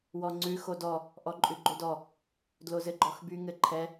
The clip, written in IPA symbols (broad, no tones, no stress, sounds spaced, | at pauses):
w ɔ ŋ͡ǀ ʉ x o d ɔ | ʔ ɔ ǃʼ ʉ ɡ͡ǃ o d ɔ | d l o z ɘ ɡ͡ǃ ɔ x b y ŋ ɘ ǃʰ ɛ